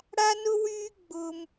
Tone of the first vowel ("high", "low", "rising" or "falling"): high